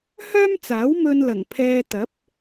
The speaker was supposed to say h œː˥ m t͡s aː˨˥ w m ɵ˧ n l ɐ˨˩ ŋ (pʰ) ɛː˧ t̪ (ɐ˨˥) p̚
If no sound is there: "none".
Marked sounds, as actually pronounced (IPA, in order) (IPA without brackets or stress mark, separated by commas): pʰ, ɐ˨˥